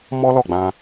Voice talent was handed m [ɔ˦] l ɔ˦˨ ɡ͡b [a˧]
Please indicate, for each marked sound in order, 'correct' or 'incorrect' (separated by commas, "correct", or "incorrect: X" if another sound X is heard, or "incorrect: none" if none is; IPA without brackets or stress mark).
correct, incorrect: ã˧